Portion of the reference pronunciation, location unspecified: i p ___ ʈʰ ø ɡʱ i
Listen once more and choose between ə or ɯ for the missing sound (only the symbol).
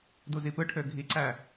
ɯ